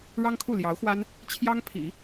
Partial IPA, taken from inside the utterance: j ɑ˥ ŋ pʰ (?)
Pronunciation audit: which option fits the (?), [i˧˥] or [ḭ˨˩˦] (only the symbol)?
ḭ˨˩˦